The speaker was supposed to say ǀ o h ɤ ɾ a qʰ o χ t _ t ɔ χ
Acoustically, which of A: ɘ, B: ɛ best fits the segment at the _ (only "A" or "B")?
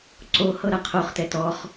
B